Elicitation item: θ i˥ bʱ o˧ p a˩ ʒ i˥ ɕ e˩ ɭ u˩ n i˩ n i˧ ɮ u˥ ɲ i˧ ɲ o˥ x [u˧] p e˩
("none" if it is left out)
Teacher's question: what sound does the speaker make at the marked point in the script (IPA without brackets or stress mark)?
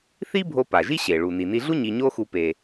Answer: u˧